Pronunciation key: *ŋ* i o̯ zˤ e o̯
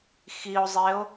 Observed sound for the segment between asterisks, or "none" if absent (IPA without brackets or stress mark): x